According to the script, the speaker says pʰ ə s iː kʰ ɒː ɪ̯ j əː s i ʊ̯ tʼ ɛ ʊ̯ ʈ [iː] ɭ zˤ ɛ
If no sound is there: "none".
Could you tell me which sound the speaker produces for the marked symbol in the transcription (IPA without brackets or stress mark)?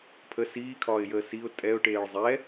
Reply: eː